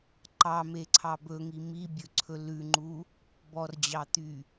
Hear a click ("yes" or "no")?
yes